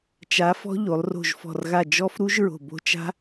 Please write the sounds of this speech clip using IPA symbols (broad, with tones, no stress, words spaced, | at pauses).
t͡ʃa˨˥fɔ̤˦˥ ʎo˩˧lˠro̤˧˩ʒfɔ̤˧˩rɣa˧˩ d͡ʒɔ˦˥fɾu˦˥ʒɹo̤˧˩ bo̤˦˥t͡ʃa̤˦˥